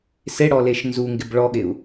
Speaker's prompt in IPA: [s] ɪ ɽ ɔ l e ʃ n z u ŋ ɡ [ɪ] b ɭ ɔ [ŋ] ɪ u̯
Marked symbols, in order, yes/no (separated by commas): yes, yes, no